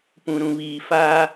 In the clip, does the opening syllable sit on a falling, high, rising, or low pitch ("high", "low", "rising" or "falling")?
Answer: low